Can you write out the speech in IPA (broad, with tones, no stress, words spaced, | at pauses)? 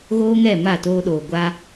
ɣoː˦ŋɛ˦˨ ma˦˨toː˧ɗoː˨ ɡʷa˧